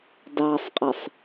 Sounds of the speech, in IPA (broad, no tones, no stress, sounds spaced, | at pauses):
d ɑ sˤ qʼ ɛ sˤ